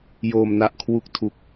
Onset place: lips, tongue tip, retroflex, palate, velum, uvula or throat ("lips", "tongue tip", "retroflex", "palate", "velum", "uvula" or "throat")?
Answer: palate